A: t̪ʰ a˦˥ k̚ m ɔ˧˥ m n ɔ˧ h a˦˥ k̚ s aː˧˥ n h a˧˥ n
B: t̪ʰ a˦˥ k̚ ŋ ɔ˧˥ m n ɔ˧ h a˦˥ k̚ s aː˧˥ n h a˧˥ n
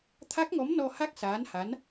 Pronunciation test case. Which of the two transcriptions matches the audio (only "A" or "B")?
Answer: B